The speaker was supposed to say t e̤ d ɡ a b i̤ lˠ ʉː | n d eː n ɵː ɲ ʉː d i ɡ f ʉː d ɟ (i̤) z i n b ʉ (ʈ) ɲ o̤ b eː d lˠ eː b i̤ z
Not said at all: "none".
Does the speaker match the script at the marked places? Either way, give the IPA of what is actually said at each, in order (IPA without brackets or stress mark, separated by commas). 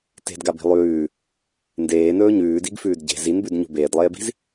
e̤, d